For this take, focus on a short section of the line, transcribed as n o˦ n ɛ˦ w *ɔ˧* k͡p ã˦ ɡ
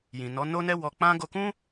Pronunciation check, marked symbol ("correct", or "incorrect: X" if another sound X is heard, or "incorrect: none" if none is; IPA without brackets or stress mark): correct